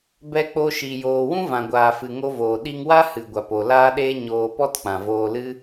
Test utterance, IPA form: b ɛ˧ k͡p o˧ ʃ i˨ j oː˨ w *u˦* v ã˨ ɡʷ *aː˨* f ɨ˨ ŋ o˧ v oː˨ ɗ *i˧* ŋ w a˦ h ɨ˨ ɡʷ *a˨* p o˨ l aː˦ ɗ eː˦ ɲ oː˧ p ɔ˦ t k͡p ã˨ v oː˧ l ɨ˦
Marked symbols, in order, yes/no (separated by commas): no, yes, yes, yes